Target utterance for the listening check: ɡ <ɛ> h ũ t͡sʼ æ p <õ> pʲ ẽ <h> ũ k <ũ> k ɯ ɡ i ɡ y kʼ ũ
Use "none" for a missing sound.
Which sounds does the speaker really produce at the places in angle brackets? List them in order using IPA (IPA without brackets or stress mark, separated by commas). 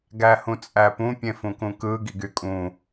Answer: æ, ũ, f, ũ